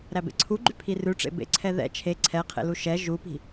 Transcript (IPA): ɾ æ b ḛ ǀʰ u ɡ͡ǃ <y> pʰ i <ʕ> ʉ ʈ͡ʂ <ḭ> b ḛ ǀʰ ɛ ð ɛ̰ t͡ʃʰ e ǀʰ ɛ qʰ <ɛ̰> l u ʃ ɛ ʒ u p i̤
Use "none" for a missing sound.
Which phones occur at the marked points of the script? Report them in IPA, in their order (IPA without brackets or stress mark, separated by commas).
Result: y, r, ḛ, ḛ